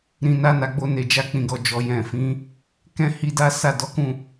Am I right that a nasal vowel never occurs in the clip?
no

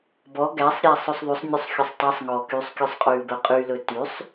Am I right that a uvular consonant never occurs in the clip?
no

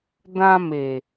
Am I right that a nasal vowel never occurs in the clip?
no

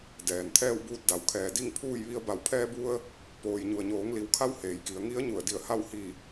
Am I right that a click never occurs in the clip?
yes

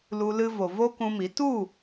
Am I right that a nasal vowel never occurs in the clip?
no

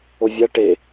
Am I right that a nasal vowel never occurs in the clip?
yes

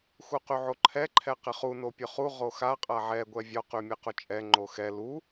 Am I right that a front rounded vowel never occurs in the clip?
no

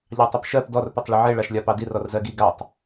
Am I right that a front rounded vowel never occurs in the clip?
no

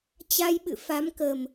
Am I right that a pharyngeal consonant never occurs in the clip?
yes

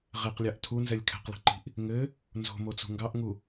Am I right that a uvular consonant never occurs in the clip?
no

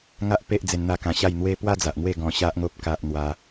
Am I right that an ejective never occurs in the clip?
yes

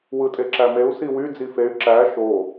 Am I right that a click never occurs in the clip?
no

